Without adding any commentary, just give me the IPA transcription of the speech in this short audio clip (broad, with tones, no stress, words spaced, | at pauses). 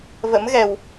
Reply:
və̰˧˥mɣɛ˨˩w